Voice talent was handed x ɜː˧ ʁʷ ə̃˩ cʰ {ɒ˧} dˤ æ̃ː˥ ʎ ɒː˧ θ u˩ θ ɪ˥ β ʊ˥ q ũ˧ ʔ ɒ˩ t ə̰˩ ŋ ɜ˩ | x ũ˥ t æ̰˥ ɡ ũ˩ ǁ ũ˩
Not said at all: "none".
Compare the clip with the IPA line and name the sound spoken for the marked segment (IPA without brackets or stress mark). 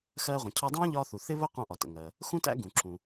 ɒ˧